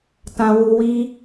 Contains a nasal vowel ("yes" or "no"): yes